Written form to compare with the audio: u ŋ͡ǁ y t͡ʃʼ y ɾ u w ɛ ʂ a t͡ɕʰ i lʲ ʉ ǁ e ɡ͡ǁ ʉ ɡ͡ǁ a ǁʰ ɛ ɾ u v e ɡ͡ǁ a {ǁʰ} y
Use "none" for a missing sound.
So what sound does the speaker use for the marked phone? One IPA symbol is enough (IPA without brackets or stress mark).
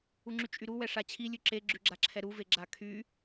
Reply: kʰ